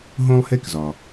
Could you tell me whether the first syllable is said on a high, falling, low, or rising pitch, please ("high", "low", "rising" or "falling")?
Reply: high